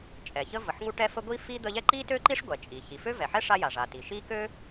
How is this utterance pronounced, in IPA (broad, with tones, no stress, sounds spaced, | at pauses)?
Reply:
t͡ʃʼ ɛ˩ ç ə˥ v ə˩ ħ ŋ u˥ ʈ ɛ˥ f ə˥ ɡʷ i˥ f i˥ d̪ ə˥ ʎ ɛ˥ ǃ i˥ t ø˥ ǃ i˥ ʂ ɡʷ ɛ˩ t͡ʃʼ i˩ ç i˩ f ø˥ v ɛ˩ ħ ɛ˥ ʂ a˥ j a˩ ʐ a˩ t i˩ ʃ i˥ k ø˥